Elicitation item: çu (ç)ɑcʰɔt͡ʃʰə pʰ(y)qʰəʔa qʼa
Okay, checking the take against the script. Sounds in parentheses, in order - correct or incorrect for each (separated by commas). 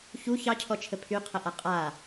correct, correct